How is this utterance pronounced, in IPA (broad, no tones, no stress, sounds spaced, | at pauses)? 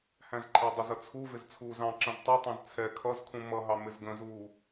h æ̃ z ǃʰ æ dˤ ə z ʌ t͡sʰ u v ɪ z t͡sʰ uː z ɑ̃ ǁ ə̃ z tˤ ʌ tˤ ɛ̃ z t͡sʰ ɛ kʰ ʌ z kʰ ũ m ʌ ɦ ɑ m ɪ z ɡ ə̃ z uː